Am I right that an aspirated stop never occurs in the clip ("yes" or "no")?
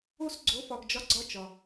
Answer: yes